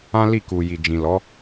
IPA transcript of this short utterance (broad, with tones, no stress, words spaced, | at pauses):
ã˦li˦˨ku˨ ji˨d͡ʒĩ˨lɔ˨˦